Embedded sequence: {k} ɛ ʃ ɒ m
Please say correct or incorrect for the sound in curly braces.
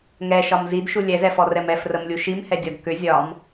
incorrect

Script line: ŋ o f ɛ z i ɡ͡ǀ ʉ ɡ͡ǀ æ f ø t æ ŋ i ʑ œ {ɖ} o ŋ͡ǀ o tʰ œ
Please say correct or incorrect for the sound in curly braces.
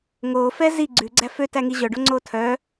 correct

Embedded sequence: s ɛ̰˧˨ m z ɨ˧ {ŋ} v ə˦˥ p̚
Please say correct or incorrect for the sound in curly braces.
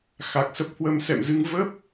correct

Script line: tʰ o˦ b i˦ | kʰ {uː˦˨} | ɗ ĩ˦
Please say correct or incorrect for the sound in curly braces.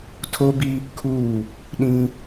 correct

